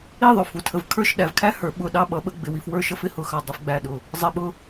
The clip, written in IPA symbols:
i˥˧ ðˤ ʊ˧˩ f u˧˩ tʰ ə˧ v kʰ ə˞˥˧ ʃ ɗ æ˩˧ v kʰ æ˥ h ə˞˩˧ ɓ ʊ˧˩ ɗ ɑ˥˧ ɓ ʌ˩˧ ɓ ə˧ ɡ͡b ɪ˩˧ w i˧ f w ə˞˥ ʃ ʌ˧ f ɪ˥˧ h ʊ˧˩ x ɑ˧˩ dˤ ɪ˧ f ɡ͡b æ˧˩ ɗ ʊ˧˩ | zˤ ɪ˧˩ ɓ ʊ˥˧

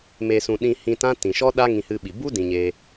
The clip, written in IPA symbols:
m e˨ s ũ˨ ɗ ĩ˧ h ĩ˧ t ã˦ t ĩ˨ ʃ ɔ˦ ɗ a˦ ŋ ĩ˧ h ɨ˧ ɓ i˨ b u˦ d ĩ˧ ɲ eː˧

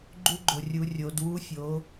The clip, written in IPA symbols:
ɡ͡ǃ u˧˥ ɡ͡ǃ o˩ rʲ u˩˧ rʲ o˩˧ d w u˧˥ fʲ o˩˧

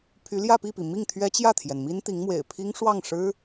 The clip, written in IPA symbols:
pʰ y˧˥ l j ä˥˧ p i˥˩ p i˩ m i˥˩ ŋ t̪ʰ ɥ ɛ˥ t͡ɕ j ä˥˩ t̪ʰ j ɛ˩ n m i˥ n t̪ i˧˥ ŋ m w ḛ˨˩ ɪ̯ pʰ i˥ ŋ ʂ w ɑ˥˩ ŋ ʂ ɻ̩˥

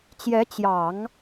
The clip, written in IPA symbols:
t͡ɕ j ɛ˧˥ t͡ɕ j ɑ˨˩˦ ŋ

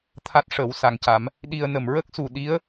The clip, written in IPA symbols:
t̪ʰ a˦˥ t̚ ʂ əː˨˩˦ w s a˨˩ ŋ c a˨˩˦ m | ɗ i˧ ə̯ n ə˨˩˨ m ɹ ə˦˥ k̚ s u˨˩˨ ɗ i˧˥ ə̯

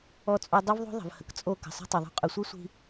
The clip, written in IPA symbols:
ɔ˦ t͡sʼ o˦ dˤ o˦ v ðˤ o̤˦ ðˤ ə̤˨ v h ə˨ k t͡sʼ o˦˨ k ə̤˨ sˤ i̤˦ tˤ œ˨ ðˤ o̤˦ qʼ œ˨ sʷ i˦ sʷ i̤˦

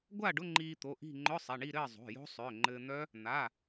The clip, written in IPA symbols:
ɡʷ a˥˨ ɖ ʊ˧˥˧ ŋ͡ǃ iː˧ t̪ o˩˧˩ ʔ i̤˥˨ ŋ͡ǃ ʊ˧˥˧ sˤ ɛ˩˧˩ ɳ i˥˨ ɾ ɘː˥˨ zˤ o̤˩˧˩ j o̤˦˥ sˤ ʏː˩˧˩ ŋ͡ǃ ɘː˧ n̪ œ˦˥ | n̪ a˩˧˩

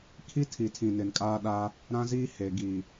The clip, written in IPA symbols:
kʰ i˦ tʰ i˨ tʰ ĩ˨ n ɪ˨ n kʼ aː˦ ɗ aː˦ | ɾ ã˦ z iː˦ h e˨ ɡ iː˨

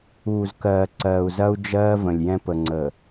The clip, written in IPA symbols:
uː˨ z k ɜː˨ ǀ ɜː˨ u̯ z ɐ˦ u̯ d͡ʒ ɜː˦ v ə̃˨ lʲ j ɛ̃˦ p ə˨ ŋ͡ǀ ə˨

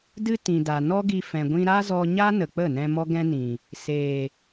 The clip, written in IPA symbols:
d ɨ˧ t ĩ˨ d a˨ n ɔ˦ ɡ i˧ f ɛ̃˨ ɡʷ ĩ˧ ɾ a˦ z ɔ˧ ɲ a˦ n ə˨ k͡p ə˦˨ n ɛ̃˧ m ɔ˦ ɡ ɛ̃˦ n ĩ˨ | s eː˨

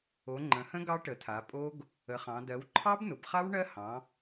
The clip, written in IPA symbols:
o˩˧ ŋ͡ǃ ə̃˩˧ h ə̃˦˥ ɡ ɑ˦˥ ʈ ə˩˧ tʰ a˩˧ pʼ o˦˥ ɡ | ə˩˧ χ ɑ̃˩˧ d ɜ˩˧ w ǃʰ ɑ˦˥ b n ʊ˩˧ b χ a˦˥ w ɳ ɜ˦˥ h ɑ̃˩˧

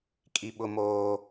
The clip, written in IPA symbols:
kʼ i˦ ɓ ʊ˦ m oː˦

